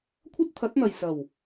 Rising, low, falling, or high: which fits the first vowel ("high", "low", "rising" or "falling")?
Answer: high